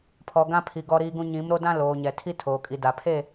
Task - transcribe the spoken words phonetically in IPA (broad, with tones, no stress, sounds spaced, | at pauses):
pʰ ɔ˨ ɡ ã˦ pʰ i˨ ɡ ɔ˦ ɾ iː˦ ɡ ũ˦ ɲ ĩ˨˦ m ɾ o˦ d ã˦ l oː˨ ɲ ɛ˨ tʰ i˦ tʰ oː˨ kʼ i˨ d a˨ pʰ e˦˨